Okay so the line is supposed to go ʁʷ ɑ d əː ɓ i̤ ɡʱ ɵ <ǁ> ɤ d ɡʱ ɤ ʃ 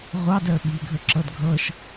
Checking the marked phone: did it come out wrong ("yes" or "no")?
no